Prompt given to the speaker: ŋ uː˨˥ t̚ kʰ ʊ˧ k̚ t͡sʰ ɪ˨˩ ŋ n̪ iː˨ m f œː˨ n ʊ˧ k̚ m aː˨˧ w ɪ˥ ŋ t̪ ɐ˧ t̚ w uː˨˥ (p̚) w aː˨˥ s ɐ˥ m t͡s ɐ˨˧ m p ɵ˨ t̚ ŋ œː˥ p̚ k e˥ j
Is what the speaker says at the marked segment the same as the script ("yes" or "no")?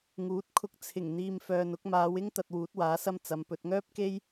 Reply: no